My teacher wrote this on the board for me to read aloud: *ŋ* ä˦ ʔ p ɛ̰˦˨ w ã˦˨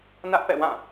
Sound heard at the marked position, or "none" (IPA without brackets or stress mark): n